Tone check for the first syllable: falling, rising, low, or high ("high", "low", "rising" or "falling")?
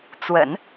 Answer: low